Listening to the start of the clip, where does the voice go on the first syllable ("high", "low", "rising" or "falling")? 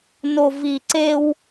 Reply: low